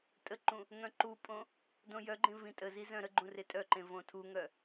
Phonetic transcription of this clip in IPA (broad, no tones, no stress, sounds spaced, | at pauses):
tʼ ə ǃ ũ | ŋ œ̃ ǃ u pʼ õ | d õ j œ ɡ͡ǃ ẽ v ĩ tʼ ə z i z œ̃ ɾ ə ɡ͡ǃ ũ r e tʼ œ ǃ ẽ v õ tʰ u ŋ œ